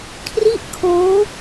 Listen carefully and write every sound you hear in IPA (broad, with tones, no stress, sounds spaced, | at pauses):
kʰ r i˥˩ ʔ kʰ oː˦˥